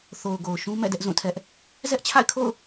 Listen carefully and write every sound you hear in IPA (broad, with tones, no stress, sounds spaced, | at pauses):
θ o˨ ʊ̯ ɡ o˨ ʊ̯ ʃ ũ˦ m ɛ̰˦˨ d ɛ˦ ʔ z ũ˦˨ tʰ ɛ˦ ʔ | z ɛ˦ ʔ t͡ɕʰ a̰˦˨ ɪ̯ kʰ o̰˦˨ ʊ̯